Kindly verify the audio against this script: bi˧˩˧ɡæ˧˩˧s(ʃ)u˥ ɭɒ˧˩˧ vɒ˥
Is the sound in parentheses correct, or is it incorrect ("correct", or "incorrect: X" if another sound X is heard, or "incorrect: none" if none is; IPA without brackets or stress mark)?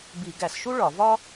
correct